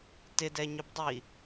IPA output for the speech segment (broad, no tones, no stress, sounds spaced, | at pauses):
t ɪ d ɛ ɲ ʏ b dˤ i